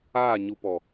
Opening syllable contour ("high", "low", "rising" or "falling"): falling